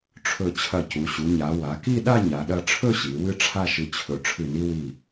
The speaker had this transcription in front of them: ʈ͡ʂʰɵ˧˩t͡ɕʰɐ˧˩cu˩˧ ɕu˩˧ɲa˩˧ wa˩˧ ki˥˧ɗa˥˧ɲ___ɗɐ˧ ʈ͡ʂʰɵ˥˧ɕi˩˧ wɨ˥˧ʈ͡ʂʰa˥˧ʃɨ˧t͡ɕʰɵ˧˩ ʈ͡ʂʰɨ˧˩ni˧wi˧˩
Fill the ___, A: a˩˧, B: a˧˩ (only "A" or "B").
A